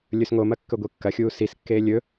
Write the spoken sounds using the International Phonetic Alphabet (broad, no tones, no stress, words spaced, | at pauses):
lʲɵsŋomɐ kːɵɡʷikːɐxʲuː siskːeː lʲɵ